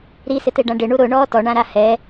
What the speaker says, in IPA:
ɾ i s ɪ t e ɖ ã ɖ ɪ ɳ u ɾ ʊ ɳ ɔː t ɔ ɳ ã ɾ a h ɛ

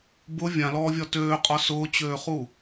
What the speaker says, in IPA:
b ʊ vʲ ã l ɔː vʲ ɒ t øː qʼ ɒ s ʊː t͡ɕ øː χ u

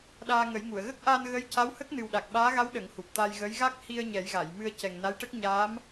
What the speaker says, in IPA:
ɗ aː˧ ŋ ə˨˩˦ j ŋ u˨˩˨ ə̯ ɣ ə˦˥ k̚ ʔ a˧ n ɣ ə˧˥ j c a˧˥ w h ə˦˥ k̚ n ɨ˨˩ w ɗ a˨˩ k̚ ɓ aː˧˥ ɣ a˧˥ w ɗ ə˨˩˦ ŋ h u˨˩ p̚ t̪ a˧ j ɣ ə˧˥ j ɣ a˦˥ k̚ h i˧ ə̯ ɲ ɛ˨˩˦ j ɣ a˨˩˨ j m ɨ˧ ə̯ c ɛ˨˩ ŋ n a˧˥ j ʈ ə˦˥ k̚ ɲ aː˧˥ m

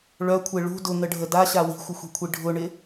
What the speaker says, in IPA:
ɭ œ kʷʰ e ɭ ṳ d ʊ ŋ ə ɖʱ ə d a ɕ a w i̤ xʷ ɪ xʷ i̤ kʷʰ i ɖʱ ʊ ɳ ɪ

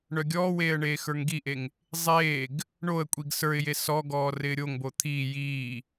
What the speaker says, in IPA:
ɳ œ ɡʲ ɔː w eː ə̯ ɳ eː x ə˞ ŋ ɡ i ʔ e ŋ | zˤ eː ɡ | ɳ o ə̯ kʷʼ i ɡ s ə˞ ɪ̯ j e s ɔ ɡ ɔː r ɪː ɾʲ o ŋ b o t̪ʰ iː j iː

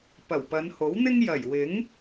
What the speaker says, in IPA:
p ɐ˨˩ w p ɐ˨˧ n h o˨˥ w n̪ ɪ˥ ŋ j ɐ˨˩ j w ɪ˨˥ ŋ

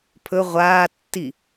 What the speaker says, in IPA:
pʰ ɵ ʁʷ aː tː i

